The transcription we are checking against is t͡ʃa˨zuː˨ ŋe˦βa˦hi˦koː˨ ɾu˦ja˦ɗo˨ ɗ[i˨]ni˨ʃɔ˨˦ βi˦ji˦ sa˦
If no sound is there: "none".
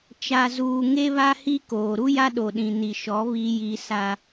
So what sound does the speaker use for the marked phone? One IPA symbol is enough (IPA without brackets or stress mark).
ĩ˨